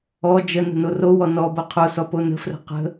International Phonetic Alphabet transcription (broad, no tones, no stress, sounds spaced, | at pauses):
ɔ d͡ʒ ə n ə̤ n o r o w ɔ n ɔ b ɤ qʰ o s ɔ p o n ə̤ f r ə̤ q ə̤